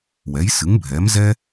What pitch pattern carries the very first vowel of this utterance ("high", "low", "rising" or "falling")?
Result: rising